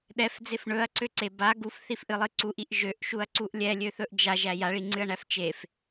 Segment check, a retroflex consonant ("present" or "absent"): present